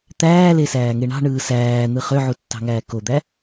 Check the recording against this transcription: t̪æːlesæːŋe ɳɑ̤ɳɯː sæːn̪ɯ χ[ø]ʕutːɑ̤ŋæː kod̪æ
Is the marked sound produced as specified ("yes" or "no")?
yes